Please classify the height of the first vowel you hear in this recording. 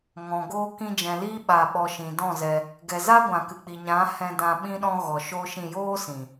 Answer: mid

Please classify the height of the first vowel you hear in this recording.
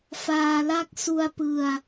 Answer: low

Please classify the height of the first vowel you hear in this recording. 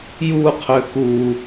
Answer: high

